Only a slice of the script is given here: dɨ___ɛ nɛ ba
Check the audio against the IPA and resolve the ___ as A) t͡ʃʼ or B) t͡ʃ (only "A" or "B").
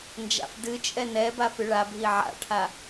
A